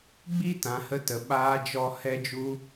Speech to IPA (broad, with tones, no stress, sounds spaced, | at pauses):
ɡ͡b i˦ t ã˨ h ə˦ t ə˨ ɓ aː˧ d͡ʒ ɔ˧ h ɛ˦ d͡ʒ u˦